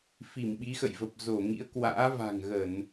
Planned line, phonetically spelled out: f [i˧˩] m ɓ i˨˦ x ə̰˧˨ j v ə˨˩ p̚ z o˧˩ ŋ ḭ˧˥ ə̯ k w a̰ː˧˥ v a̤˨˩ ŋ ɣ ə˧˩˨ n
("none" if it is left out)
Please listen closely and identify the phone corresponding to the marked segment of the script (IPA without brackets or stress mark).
i˧˩